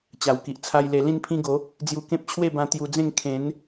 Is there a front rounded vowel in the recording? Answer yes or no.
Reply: no